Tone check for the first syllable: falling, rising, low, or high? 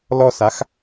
high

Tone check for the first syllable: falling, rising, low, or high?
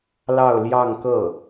falling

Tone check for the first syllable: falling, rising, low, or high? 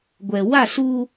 low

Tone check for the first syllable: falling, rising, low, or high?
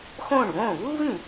falling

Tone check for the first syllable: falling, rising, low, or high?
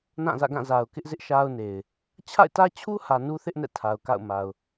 falling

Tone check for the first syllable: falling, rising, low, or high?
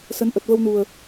rising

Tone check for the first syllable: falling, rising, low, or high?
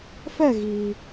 falling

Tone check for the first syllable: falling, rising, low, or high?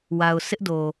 low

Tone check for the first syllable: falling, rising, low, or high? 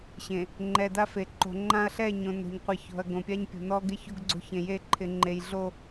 low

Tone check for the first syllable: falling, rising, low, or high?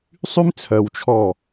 high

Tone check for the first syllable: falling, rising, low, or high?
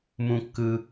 low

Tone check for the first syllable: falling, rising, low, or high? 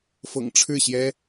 low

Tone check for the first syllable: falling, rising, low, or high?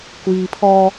low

